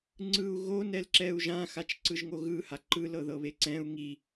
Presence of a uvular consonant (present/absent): absent